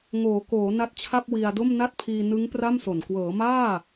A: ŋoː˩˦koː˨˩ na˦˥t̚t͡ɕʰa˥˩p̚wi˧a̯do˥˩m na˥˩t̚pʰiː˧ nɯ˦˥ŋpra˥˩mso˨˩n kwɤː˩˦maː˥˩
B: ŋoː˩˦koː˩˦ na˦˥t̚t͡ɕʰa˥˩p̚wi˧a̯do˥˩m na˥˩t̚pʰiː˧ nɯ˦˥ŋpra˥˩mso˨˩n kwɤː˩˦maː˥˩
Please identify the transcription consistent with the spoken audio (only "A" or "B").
B